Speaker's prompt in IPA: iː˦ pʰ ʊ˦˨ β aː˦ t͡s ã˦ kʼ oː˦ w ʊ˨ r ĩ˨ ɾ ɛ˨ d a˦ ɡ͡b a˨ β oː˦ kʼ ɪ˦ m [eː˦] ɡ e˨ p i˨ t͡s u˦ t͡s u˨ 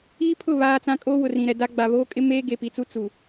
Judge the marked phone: correct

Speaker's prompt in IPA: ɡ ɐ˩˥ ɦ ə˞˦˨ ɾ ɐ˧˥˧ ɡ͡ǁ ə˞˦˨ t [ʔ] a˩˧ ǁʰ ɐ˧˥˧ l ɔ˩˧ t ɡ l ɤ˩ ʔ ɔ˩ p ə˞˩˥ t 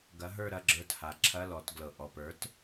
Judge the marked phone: incorrect: h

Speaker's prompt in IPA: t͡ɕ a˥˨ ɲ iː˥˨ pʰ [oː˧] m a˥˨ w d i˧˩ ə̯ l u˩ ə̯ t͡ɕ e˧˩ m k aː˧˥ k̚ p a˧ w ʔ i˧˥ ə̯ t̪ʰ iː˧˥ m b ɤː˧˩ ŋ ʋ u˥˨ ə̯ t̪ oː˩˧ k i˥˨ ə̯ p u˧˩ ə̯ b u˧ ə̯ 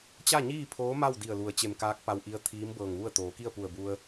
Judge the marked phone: incorrect: oː˧˥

